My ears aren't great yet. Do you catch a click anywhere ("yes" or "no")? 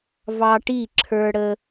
yes